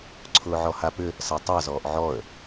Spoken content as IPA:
ǀʰʊːʕɔhapʏ | satˤazɔːʔ ʕɔə̯

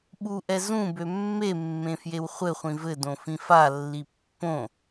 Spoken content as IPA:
ɓuʔɛ zũ bømːemːẽ fjewχʷɘχʷĩ vɘdõ fĩfalːi pːõ

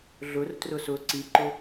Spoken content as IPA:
ɮʊrtrʊ sʊ ǀiǃʊ

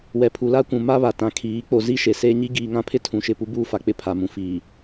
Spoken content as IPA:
wɛ˨pʰu˨la˦kʷũ˨ ma˦βa˨ tã˨kʰiː˨˦ k͡po˨zi˦ ʃe˨seː˦ ɲi˦ɡiː˨ŋã˦pʰɪ˦ tʰũ˨ʃɪ˦˨pu˦buː˦ fa˨k͡pɪ˦˨ pʰa˨mũ˨ fiː˨

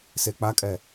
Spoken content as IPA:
sek͡pakʼɛ

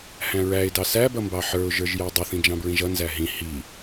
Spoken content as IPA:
hæ̃ɹæɪ̯dɑ sæbʌ mbɑħə˞ʊ̯ʒə˞ʒ jædˤʌθĩ d͡ʒɑ̃bɹĩʒʌnzæ ɦĩ hi

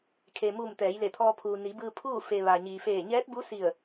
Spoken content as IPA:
kʰeː˩mu˧˩m t̪ɛː˩˧jle˧˩t̪ʰɔː˧ pʰuː˩ ni˩˧bɯː˧pʰuː˥˨ fe˧ ʋa˩ɲiː˩feː˧˩ ɲɛː˧˥t̚bu˧˥ si˧˩ə̯

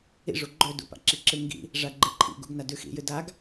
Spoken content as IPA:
ḭʐu ɡ͡ǃɵdṵ pa̰ǁiǁɨ ŋɡḭ | ʐaɡ͡ǃeǃʰḭɡṵɡ nadʉxḭjɨ daɡ

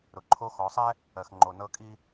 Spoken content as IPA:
ɾʊ˩ǃʰo˧˥xɔ˩˧sˤɛ˥ | ɜ˩xŋ͡ǃo˩ nɤ˧˥kʼi˥

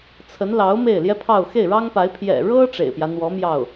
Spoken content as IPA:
t͡sʰə˧˥nlɑ˧˥ʊ̯ me˥˩ɪ̯ljɛ˥pʰɑ˥˧ʊ̯ xe˥˩ɪ̯ɻɑ˥ŋpa˧˥ɪ̯ pʰjɛ̰˨˩ɻɤ˥ ʈ͡ʂḛ˨˩ɪ̯pjä˦n̪wɔ˧˥ mjɑ˥˩ʊ̯

